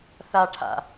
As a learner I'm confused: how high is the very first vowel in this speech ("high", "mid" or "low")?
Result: low